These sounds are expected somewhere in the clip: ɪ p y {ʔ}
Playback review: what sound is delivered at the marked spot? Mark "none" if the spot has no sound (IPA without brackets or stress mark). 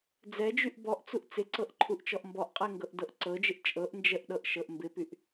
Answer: ʔ